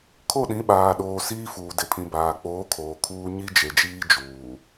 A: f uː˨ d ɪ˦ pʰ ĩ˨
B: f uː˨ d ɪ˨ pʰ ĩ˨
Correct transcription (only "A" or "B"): B